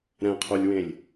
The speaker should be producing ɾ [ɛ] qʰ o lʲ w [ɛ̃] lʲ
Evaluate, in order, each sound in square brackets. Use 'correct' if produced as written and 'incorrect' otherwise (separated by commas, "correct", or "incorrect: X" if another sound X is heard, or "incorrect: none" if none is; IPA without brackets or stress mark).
incorrect: ɛ̃, incorrect: ẽ